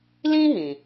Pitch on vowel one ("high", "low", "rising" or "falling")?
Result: high